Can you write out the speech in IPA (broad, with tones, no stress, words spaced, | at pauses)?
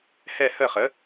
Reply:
hɛ˦˨hə˦˨χə˩˥